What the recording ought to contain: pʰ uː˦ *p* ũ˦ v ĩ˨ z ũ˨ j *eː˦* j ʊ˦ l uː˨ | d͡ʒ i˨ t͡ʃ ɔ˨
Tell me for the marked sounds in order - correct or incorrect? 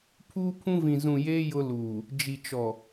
incorrect, correct

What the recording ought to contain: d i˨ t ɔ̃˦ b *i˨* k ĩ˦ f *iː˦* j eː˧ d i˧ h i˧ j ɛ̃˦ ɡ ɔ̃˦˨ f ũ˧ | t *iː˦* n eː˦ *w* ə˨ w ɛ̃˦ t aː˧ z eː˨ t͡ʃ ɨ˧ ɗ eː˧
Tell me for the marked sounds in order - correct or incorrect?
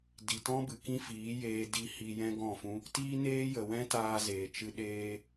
incorrect, incorrect, correct, incorrect

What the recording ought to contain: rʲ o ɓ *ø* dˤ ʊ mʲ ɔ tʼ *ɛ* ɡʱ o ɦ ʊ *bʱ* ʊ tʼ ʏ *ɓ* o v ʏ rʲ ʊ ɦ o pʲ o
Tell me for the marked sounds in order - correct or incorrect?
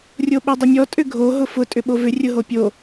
correct, incorrect, incorrect, correct

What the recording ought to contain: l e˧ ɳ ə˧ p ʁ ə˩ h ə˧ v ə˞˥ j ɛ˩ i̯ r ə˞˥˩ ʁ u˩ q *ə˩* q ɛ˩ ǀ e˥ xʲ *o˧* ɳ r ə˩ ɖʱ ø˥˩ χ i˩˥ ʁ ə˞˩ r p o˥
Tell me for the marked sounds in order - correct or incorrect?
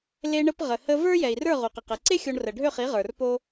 correct, correct

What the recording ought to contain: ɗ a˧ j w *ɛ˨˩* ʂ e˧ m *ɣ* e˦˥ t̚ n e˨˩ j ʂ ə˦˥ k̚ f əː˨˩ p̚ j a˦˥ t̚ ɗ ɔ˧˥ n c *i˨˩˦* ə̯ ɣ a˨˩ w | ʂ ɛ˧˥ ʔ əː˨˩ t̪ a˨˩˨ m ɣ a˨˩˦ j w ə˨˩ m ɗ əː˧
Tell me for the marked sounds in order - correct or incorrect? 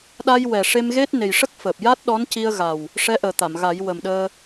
correct, correct, incorrect

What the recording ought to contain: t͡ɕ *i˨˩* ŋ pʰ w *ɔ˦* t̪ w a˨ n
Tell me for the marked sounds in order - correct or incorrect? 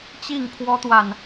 incorrect, correct

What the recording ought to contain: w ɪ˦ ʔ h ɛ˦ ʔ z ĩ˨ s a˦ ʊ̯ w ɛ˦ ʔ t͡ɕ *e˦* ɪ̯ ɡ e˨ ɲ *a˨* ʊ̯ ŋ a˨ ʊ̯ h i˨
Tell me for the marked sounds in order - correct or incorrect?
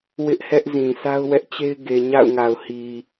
correct, incorrect

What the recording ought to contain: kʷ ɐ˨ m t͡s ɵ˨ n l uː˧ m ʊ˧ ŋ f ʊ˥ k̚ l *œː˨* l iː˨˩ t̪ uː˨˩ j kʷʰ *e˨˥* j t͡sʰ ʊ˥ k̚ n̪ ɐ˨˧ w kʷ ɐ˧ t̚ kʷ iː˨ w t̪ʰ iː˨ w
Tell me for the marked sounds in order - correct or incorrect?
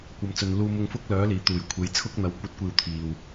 incorrect, correct

